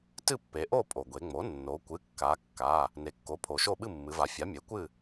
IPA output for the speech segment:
t ɨ˥˨ pː e˩˧ ʔ o˥˨ pʼ o˩ ɡʷ e˩˧ ŋ͡m o˩˥ nː o˩˧ kʷ ɨ˩˧˩ kː a˩˧ kː a˩˧˩ | n e˩˧ kː o˩˥ pʰ o˩ ʃ o˥˨ ɓ ɨ˥˨ mː ɨ˩˧ v a˩˧ fʲ a˩˥ mʲ e˩˥ kʷ ɨ˥˨

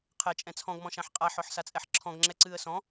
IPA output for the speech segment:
qʰ ɛ t͡ʃʼ ɛ̃ t͡sʰ ɔ̃ ɡ m ɔ̃ ʃ ã ħ qʼ a ħ ɔ ħ s a t͡sʼ ɛ ħ ǁʰ ɔ̃ ɡ ŋ͡ǁ ɛ ǀ ɨː ə̯ s ɔ̃

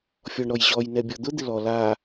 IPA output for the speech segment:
fʲ ɔ ɳ ɾ ɔ j ʑ ɔ j n ɛ bʲ ɔ d̪ ʊ d̪ ɪ l ɔ l a

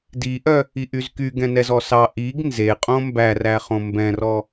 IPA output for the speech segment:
d i ʔ œ | i ʔ y z k y ɡ ɛ̃ n ɛ z ɔ s ɑ ʔ i ɡ n z e qʼ õ m b æ r æ χ õ m b ɛ̃ r ɔ

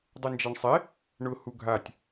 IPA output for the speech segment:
dˤ u n d͡ʒ a ɳ sˤ ɛ | ɳ ʊ h u ɡʱ a tʲ

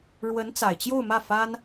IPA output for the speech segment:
ɻ w ə˧˥ n t͡s a˨˩ ɪ̯ t͡ɕ j o˥˧ ʊ̯ m ä˥˩ f a˥ n

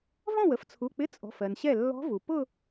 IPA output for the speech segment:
v ɔ̃˥˩ w ə˧˥ f t͡sʰ u˩˧˩ k͡p ɪ˧˥˧ t͡sʼ ɔ̤˩˧˩ f ɜ˩ n ɕ ɛ˥˩ lː ɔ̤˧˥ v u˩ p ʊ˥˧

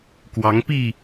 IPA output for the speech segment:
k w ɑ˨˦ ŋ p i˥˨

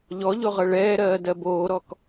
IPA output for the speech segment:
ʎ ɔ ʎ o ʁ ɤ ɭ ɛː ɾ ɜː d ɜ b oː ɾ ɔ k

